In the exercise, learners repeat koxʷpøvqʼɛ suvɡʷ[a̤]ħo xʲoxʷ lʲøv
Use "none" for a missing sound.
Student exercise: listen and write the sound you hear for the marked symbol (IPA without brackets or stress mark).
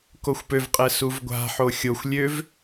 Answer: a̤